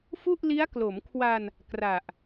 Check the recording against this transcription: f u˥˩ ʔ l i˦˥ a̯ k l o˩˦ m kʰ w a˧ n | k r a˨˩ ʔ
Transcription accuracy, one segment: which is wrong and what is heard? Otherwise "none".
none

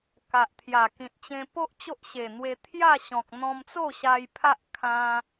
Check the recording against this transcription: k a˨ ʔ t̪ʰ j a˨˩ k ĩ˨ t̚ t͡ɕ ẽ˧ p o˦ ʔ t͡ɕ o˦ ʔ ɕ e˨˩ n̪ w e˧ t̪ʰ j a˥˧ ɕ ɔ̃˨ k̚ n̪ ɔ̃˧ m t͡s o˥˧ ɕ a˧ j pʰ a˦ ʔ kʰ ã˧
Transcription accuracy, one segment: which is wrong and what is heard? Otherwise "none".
none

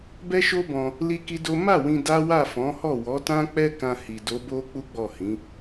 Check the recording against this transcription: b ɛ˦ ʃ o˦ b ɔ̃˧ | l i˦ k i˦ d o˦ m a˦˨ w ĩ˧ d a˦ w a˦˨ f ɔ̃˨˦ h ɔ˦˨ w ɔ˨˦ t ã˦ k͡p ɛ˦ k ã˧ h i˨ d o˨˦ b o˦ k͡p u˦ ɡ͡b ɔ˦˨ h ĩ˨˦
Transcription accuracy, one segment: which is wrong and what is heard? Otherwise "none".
none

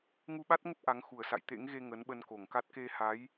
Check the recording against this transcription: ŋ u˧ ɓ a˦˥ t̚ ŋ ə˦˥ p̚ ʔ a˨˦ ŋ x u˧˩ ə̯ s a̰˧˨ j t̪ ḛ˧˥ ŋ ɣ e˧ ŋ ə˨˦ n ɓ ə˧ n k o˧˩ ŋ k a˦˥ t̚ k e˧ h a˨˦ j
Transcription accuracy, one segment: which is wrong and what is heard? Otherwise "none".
none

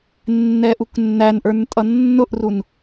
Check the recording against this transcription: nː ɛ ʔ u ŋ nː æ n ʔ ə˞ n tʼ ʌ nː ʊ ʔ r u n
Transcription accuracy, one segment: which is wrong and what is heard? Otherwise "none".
ŋ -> k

